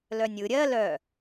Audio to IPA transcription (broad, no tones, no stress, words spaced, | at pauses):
lœnʲɯ ɾʲɜ lœ